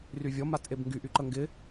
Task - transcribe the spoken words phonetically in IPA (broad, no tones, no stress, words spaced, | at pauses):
ryvʲɔ matʔebŋɡy ʔyǃəŋɡɪ